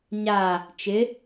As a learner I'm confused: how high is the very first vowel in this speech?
low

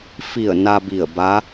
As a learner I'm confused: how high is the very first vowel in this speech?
high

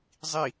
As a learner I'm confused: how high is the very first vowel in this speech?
high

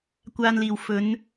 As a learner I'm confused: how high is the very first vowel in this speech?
low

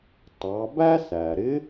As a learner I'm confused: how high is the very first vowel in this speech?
low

